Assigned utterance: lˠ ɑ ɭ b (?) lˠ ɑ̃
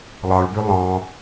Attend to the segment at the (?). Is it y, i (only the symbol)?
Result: y